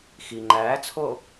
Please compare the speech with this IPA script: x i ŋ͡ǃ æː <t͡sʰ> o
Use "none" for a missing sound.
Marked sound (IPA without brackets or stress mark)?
t͡sʰ